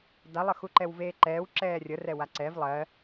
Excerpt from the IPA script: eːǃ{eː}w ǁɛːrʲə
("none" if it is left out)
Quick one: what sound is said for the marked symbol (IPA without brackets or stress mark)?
ɛː